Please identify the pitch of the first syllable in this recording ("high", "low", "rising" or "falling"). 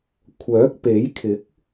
rising